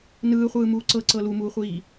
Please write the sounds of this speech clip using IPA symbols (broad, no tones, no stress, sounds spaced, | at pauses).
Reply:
n ɯː χʷ ɯː m uː ǀ ɤ ǀ ɤ l u m uː χʷ iː